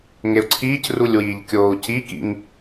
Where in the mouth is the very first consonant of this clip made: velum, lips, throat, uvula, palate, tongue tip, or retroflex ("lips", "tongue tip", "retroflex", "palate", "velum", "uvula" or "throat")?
velum